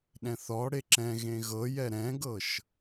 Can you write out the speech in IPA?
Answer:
ɗ ɛ̃ θ ɔ ɽ e ǁ ɛ̃ ɣ ẽ ɣ ɤ j ɛ ɾ ɛ̃ ɡ ɤ ʃ

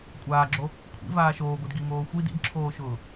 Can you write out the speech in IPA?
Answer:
kʷʼ aː ɡ͡ǁ o | kʷʰ ḭ v aː ʃ oː ɡʷ ɯ d ɡ i ŋ oː xʷ i d ḭ d ǁʰ oː ʃ ʊː

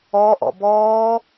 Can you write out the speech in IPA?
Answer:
ɔ ʔ ɔ̰ b ɔː

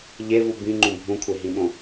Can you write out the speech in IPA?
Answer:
ʎ e v u b ĩ ŋ͡ǃ ũ bʱ ũ kʷʰ e ɦ ĩ ɓ õ

